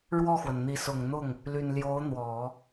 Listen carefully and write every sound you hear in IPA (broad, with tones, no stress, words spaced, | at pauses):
ɻwɔ˥˩xwə˩nn̪i˧˥ sʊ˨˩ŋn̪ʊ˥˩ŋ | ly˨˩nljo˧˥ʊ̯n̪wɔ˨˩˦